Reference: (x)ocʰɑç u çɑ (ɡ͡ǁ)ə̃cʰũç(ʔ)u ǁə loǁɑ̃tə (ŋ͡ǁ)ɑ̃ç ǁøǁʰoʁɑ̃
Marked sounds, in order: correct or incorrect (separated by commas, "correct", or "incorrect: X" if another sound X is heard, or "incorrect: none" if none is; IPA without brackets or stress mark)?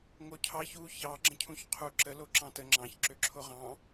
incorrect: ŋ, correct, incorrect: qʰ, correct